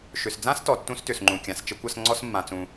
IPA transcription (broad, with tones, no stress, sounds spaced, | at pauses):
ʃ ʏ˩ s d͡z ã˥ s t ɔ˩ tː ũ˥ s t ʏ˩ s ŋ͡ǃ ũ˩ kʲ ã˩ s t͡ʃ ə˥ kʷ ɐ˥ s ŋ͡ǀ ɔ˥ s mː ã˩ t͡s ũ˩